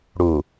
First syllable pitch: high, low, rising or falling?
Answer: low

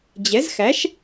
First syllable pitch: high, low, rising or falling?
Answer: rising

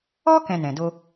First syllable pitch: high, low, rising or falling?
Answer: high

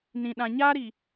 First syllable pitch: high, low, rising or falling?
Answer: low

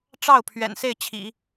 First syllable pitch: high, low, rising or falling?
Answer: falling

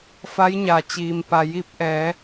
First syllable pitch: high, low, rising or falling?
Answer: rising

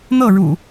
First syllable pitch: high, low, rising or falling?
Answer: falling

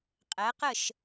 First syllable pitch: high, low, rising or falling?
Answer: rising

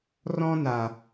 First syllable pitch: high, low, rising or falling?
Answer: high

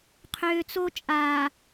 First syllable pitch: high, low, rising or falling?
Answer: low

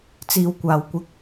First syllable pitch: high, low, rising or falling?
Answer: low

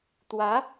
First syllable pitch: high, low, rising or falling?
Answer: rising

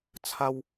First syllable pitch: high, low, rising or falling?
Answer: high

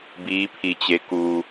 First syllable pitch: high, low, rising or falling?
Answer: rising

